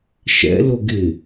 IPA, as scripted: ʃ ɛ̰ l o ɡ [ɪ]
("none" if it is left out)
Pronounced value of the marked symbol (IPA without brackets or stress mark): ɪ